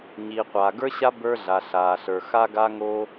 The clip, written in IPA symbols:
ɲ iː˩ qʷ aː˩ ɡ ə˞˥ ɕ a˥ b ə˞˥ ɮ a˩ ɬ aː˩ ɬ ə˞˩ x a˥ ɡ a˥ ŋ oː˥

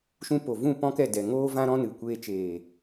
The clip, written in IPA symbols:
ʃ ũ˦ p o˨ v ũ˦˨ p ɔ̃˦ k ɛ˦˨ d ɛ˨ ŋ oː˧ v ã˧ ɾ ɔ̃˧ n ɨ˨ kʷ eː˧ t͡ʃ eː˨

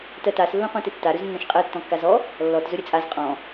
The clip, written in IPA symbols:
t ɜ t a s lː õ qʷ ɛ̃ t ɘ tː a ɾ ɵ z nː ɐ̃ ʃ qʼ ɜ tː ɔ̃ kː a z ɔ | lː ɔ t z ɵ ɾʲ ɘ t͡sʼ a z qʼ ɔ̃

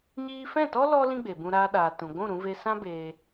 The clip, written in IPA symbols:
ɲ iː˦ f ɛ̃˦˨ t ɔ˦ l ɔ˦ l ĩ˦ ɡ͡b e˨ b ũ˧ ɾ aː˧ ɗ aː˨ t ũ˨ ɡʷ ũ˦˨ ɾ ũ˧ v e˧ s ã˦ b eː˧

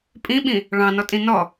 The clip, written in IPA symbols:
pʼ ĩ ɓ ĩ | ɭ ɑ̃ n ɔ tʼ ĩ n ɔ

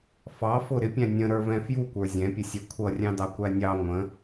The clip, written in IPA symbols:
f ɑ f ʊ ɾ ɪ pʲ æ̃ nʲ ə̃ ɾ ə˞ v ɛ̃ f j u kʷ ə˞ zʲ ɛ̃ pʲ ə sʲ ɛ kʷʰ ʌ rʲ ɑ̃ d ɑ kʷ æ nʲ ɑ ŋʷ ə̃

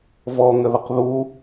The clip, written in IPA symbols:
v ɔ ŋ ə ð ə q ð u

